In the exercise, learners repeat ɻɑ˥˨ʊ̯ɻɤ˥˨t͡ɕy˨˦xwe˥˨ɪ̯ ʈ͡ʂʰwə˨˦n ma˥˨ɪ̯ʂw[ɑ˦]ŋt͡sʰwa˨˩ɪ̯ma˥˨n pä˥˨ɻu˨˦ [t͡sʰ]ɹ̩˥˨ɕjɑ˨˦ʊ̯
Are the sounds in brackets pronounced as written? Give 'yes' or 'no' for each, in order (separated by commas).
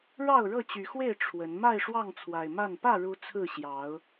no, yes